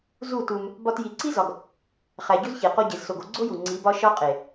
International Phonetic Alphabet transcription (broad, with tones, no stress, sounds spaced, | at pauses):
z u˦˨ t u˧ m | b ɒ˧ t j i˨ ǀ i˦ z ɒ˨ ɡ | χ æ˨ ɟ u˦ z ç e˨ q o˧ ɟ e˨ z s o˨ ɡ o˧ ɡ͡ǀ o˦ j u˨ ŋ͡ǀ i˨˦ b ɒ˦ ʃ ɒ˦ qʼ e˨